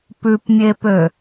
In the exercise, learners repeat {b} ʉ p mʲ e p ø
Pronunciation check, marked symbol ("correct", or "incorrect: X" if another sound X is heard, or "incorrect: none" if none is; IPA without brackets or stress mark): incorrect: p